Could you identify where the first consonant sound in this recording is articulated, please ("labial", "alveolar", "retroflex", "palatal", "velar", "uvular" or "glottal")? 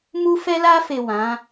labial